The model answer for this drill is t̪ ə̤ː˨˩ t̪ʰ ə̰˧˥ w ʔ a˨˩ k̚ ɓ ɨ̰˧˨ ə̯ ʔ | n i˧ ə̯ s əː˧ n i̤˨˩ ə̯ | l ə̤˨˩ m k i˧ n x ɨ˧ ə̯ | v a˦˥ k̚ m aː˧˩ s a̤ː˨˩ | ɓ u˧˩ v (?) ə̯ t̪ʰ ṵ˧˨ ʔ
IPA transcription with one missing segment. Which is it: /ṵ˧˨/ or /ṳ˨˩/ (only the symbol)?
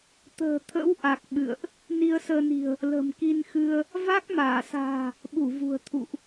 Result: ṳ˨˩